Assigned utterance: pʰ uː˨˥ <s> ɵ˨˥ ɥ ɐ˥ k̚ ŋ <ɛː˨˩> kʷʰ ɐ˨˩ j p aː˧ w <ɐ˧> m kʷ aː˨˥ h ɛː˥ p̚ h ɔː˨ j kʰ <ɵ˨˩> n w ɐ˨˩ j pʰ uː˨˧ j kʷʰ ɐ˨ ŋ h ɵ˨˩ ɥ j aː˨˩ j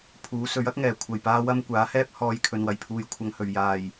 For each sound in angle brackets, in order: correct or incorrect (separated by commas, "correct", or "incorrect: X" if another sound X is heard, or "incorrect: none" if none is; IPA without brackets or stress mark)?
correct, correct, incorrect: ɐ˥, incorrect: ɵ˨